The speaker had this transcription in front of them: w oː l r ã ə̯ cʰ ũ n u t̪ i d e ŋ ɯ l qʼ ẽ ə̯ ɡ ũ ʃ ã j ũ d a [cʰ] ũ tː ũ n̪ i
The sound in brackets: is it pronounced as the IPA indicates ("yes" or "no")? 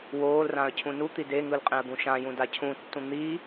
yes